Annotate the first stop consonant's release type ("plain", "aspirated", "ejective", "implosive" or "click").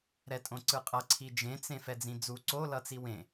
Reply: ejective